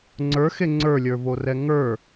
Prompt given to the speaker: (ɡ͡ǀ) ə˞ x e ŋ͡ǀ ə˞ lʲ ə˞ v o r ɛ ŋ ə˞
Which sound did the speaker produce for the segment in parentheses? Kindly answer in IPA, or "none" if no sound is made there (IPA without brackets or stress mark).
ŋ͡ǀ